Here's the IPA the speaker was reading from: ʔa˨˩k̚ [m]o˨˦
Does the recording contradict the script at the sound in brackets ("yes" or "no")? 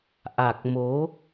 no